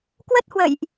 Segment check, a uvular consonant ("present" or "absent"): absent